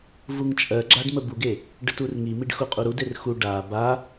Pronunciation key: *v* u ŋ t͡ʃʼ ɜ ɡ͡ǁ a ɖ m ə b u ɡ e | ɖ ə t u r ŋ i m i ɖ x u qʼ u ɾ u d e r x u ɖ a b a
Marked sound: correct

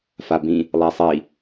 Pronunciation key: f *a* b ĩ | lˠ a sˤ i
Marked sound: correct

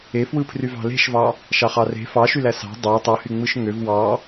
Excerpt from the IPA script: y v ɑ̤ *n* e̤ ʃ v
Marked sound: incorrect: l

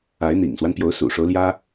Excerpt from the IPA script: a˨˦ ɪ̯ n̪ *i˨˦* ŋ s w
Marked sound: incorrect: ḭ˨˩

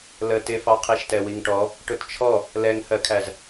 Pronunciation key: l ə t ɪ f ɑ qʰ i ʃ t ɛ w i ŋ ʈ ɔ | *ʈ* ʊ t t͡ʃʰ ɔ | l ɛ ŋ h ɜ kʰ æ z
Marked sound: correct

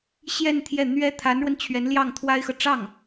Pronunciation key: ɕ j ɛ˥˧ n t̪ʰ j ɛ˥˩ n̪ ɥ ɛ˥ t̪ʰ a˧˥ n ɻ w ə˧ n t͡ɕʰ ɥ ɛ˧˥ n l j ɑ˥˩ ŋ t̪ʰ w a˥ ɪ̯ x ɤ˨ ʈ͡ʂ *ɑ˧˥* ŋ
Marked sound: incorrect: ɑ˥˩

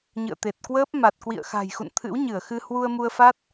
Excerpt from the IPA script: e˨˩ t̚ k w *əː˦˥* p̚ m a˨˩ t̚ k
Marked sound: correct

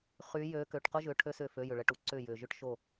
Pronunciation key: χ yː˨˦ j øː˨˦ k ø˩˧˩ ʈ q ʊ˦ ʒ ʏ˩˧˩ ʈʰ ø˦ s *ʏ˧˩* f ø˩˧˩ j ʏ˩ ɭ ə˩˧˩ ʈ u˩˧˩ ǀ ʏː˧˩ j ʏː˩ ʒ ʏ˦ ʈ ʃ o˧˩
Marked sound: correct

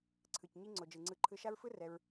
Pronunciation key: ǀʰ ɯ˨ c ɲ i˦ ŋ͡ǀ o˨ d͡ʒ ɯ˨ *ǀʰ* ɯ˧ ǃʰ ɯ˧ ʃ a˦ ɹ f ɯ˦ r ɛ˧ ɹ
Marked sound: incorrect: ŋ͡ǀ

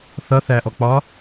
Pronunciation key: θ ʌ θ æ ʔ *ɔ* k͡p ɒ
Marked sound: correct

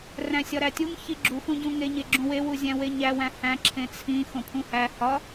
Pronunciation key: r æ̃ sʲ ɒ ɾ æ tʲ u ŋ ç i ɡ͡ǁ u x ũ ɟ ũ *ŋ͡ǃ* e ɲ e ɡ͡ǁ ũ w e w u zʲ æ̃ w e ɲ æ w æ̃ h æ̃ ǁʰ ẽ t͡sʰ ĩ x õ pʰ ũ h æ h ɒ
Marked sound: incorrect: ŋ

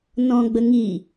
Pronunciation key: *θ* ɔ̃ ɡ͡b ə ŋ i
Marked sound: incorrect: n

